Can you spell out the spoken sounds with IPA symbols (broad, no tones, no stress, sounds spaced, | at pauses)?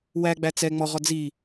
w æ ɡ͡b æ t͡s ɛ ŋ͡m ɔ ʁ ɔ d͡z i